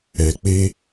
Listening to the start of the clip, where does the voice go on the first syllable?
low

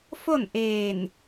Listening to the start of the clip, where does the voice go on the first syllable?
falling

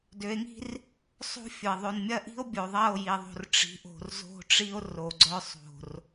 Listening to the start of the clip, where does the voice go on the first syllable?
rising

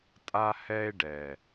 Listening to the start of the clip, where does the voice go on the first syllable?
high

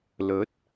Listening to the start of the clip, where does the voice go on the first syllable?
rising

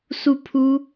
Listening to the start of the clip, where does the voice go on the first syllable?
falling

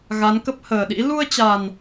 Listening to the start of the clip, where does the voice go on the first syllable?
rising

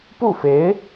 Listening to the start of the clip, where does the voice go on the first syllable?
falling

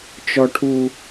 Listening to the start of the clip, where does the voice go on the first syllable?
low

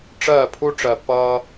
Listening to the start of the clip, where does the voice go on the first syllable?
falling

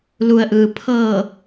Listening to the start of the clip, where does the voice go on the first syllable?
low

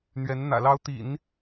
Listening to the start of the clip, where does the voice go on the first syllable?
rising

